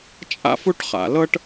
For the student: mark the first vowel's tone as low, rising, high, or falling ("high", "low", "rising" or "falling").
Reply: high